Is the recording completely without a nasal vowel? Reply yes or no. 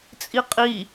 yes